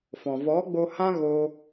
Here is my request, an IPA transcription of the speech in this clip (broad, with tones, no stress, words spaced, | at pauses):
fɔ̃˨vɔ˨˦ɡ͡bo˧hã˦ ɣoː˦